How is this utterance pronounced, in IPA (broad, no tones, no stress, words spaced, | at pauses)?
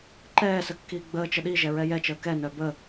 ǃɛːsə kːiːɡ͡bəːt͡ʃə ɗiʒɛ ɹɛjɛt͡ʃəː kɛnœ bə